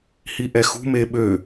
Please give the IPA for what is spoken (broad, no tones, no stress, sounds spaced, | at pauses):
h i ʔ ɛ x ṳ m e ɓ ø